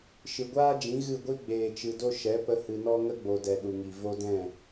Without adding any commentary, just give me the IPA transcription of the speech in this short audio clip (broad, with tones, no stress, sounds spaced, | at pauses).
ʃ ɨ˨ ɡʷ aː˦ d͡ʒ ĩ˨˦ ɣ ɨ˦˨ ɡʷ i˦ ɡ͡b eː˨ t͡ʃ ɨ˨ d o˧ ʃ ɛ˨˦ p ə˧ h ɨ˨ n ɔ˧ ŋ ə˧ ɡ͡b o˨ d ɛ˨ ɗ u˨ ŋ i˨ v o˧ d ɛ̃˦˨